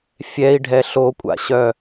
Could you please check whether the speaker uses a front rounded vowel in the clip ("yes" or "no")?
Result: yes